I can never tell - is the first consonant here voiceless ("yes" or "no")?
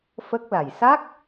yes